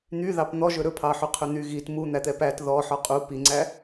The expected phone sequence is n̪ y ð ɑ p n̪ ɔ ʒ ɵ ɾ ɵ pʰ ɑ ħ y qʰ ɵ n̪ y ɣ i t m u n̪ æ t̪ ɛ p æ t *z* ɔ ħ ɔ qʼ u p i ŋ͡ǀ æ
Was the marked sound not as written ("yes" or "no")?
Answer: yes